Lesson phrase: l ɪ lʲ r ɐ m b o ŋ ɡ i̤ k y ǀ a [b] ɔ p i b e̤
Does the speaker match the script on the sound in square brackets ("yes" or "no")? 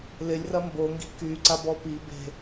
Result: yes